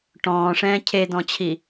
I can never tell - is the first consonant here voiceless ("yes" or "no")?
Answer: yes